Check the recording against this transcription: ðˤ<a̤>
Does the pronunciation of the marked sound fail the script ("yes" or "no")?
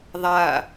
yes